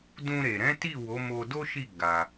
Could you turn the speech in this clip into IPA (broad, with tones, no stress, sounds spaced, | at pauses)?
d ũ˧ ɾ e˨ ɾ ɛ̃˨˦ t i˦˨ w o˨˦ m o˧ d o˦ ʃ i˦˨ ɡ a˧